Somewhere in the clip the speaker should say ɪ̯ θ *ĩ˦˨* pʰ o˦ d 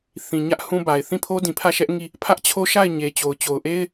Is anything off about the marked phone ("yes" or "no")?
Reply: no